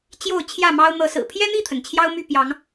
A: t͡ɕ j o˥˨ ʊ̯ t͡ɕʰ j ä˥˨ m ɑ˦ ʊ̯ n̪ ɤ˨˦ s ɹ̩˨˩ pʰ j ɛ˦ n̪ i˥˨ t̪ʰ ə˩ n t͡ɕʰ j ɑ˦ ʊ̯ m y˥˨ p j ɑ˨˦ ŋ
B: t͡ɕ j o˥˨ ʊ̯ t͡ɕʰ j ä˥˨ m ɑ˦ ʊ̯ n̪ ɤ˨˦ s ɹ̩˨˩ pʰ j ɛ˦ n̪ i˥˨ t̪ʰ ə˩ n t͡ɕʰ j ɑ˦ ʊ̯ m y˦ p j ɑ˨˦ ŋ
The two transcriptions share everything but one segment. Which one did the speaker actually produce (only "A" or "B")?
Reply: A